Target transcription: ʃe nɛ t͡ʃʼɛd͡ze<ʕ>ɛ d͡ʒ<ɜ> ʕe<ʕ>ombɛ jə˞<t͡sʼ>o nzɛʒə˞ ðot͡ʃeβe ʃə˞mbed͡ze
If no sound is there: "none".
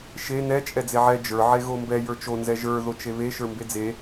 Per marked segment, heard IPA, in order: ʕ, ə˞, ɣ, t͡ʃ

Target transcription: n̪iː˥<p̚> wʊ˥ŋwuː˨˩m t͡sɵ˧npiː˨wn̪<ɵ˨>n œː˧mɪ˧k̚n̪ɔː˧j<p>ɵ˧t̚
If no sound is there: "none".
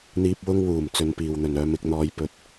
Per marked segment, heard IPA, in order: p̚, ɵ˨, p

